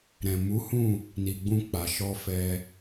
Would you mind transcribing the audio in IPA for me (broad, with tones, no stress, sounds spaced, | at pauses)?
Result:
ɾ ɛ̃˨ m u˨˦ h ũ˦˨ | n i˨ ɡ͡b ũ˧ k͡p a˨ ʃ ɔ˧ f ɛ˧